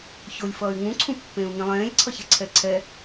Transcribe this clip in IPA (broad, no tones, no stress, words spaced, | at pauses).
çolʲfʌːy̯ ŋũǀʰũpːẽːu̯ ŋĩlˠẽːlʲǀʰʌçɛ ǀʰɛǀʰɛ